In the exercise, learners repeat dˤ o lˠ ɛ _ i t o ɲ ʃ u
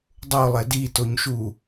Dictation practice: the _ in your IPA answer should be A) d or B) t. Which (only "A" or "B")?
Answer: A